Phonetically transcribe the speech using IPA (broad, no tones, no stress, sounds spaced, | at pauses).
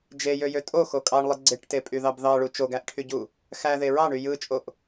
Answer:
d͡ʒ e j ø j ø tʼ o x o kʼ ɑ ɳ lˠ ɯ ɡ͡ǀ e ʈ t e pʼ y ð ɑ b ð ɑ ɭ u t͡ʃ o ɡ æ ʔ ʈʰ y ɟ u | x æ ð e ɹ ɑ ɳ y j ɯ t͡ʃʼ o ʔ